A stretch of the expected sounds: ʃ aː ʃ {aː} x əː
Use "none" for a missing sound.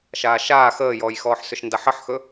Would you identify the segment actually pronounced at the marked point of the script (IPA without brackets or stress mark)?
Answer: aː